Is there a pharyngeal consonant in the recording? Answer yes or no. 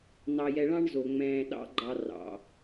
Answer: no